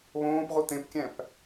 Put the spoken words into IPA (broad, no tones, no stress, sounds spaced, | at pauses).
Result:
β õː p ʁ u t̪ ẽ p kʲ æ̃ p